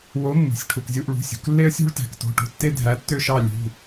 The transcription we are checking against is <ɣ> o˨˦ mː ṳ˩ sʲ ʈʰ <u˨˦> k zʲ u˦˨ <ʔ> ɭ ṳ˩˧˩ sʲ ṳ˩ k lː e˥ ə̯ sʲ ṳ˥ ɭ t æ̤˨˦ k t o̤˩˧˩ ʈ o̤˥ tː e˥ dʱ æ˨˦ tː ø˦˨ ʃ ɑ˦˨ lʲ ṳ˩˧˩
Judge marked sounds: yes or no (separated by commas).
no, no, yes